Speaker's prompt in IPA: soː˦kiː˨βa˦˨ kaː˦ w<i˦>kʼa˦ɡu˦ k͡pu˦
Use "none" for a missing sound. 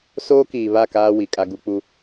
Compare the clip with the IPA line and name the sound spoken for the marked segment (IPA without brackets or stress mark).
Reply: i˨